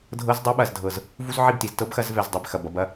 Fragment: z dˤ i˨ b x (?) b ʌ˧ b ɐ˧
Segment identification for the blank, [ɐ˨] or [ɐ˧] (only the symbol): ɐ˨